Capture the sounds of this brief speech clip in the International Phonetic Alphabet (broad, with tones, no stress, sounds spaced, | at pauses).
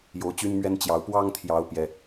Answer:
j o˨˦ ʊ̯ t͡ɕ y˦ n m ɥ ɛ˦ n t͡ɕ j ɑ˨˦ ʊ̯ p w ɑ˦ ŋ t̪ʰ j ɑ˨˦ ʊ̯ p j ɛ˦